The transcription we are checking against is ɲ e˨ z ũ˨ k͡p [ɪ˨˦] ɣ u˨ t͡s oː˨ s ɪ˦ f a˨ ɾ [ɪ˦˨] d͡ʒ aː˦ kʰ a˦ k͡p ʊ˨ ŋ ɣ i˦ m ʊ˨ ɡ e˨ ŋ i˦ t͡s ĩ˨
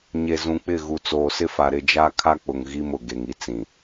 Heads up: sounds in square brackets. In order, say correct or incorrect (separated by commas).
incorrect, correct